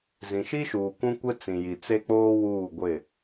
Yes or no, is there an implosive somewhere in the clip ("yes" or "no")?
no